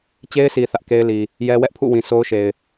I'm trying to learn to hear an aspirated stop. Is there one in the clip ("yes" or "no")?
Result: yes